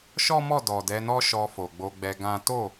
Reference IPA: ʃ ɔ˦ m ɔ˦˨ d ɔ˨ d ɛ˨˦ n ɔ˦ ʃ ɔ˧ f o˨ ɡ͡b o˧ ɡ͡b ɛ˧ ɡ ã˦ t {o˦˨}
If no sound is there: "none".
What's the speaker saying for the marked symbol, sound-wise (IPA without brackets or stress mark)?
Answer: o˦˨